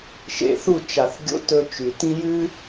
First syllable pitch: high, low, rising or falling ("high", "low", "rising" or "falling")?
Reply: low